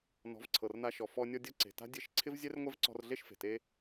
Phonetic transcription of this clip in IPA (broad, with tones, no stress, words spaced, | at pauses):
nɔ̤˨˦vǀʰɤ˨rna˧ʃɔ˨ fɔ˧ nʲɔ˧dʲɤ˧ ǀe̤˨ta̤˦ dʲe˧ʃǀʰɪ˦v zʲɛ˦rŋʷɛ˦vǀɔ̤˧rɮe˦ʃ fe̤˨te˦